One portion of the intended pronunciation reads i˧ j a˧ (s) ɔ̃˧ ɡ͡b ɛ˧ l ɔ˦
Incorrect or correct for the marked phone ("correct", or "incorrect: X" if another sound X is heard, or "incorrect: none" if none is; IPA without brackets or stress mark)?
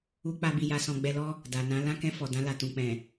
correct